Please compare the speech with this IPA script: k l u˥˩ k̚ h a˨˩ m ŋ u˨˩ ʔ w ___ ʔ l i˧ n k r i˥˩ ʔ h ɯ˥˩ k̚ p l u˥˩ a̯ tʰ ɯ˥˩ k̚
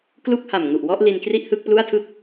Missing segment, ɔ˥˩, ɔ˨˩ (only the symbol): ɔ˥˩